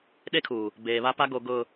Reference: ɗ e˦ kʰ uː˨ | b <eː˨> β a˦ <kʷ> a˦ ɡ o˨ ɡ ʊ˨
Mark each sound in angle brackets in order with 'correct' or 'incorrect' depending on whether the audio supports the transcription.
correct, incorrect

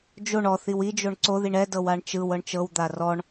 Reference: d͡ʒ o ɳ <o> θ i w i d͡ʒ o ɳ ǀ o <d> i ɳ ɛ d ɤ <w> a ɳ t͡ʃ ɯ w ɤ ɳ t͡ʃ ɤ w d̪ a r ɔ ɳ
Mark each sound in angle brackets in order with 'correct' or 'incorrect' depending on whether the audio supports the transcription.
incorrect, incorrect, correct

